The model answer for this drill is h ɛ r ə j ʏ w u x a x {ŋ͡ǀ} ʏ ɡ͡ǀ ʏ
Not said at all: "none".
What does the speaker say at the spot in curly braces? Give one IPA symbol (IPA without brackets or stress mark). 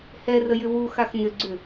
n